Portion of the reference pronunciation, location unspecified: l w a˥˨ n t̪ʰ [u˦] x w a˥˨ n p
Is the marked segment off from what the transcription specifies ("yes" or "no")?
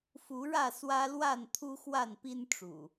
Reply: no